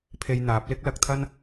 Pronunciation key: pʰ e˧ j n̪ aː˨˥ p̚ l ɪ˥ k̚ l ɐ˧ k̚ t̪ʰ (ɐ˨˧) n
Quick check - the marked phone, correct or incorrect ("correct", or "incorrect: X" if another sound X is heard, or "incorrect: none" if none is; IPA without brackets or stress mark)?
incorrect: ɐ˥